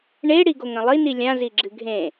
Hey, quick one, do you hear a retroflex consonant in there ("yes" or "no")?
yes